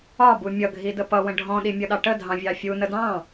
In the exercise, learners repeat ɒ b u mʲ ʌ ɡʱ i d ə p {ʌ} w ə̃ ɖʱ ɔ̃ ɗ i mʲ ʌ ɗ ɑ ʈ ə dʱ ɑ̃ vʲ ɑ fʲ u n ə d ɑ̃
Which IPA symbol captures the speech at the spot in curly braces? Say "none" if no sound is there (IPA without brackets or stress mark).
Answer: ʌ